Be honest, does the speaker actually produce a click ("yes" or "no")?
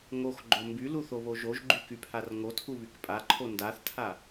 yes